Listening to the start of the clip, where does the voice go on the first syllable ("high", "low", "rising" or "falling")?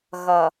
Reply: low